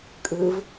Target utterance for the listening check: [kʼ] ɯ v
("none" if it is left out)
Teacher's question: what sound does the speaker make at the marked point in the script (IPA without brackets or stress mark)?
kʼ